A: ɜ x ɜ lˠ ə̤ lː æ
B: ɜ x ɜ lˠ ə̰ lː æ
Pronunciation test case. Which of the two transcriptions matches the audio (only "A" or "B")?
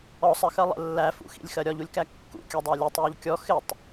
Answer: B